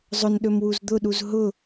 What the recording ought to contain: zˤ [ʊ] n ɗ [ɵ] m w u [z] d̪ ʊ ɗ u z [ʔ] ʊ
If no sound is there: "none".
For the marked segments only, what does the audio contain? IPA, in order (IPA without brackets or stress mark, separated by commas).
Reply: ʊ, ɵ, z, ɦ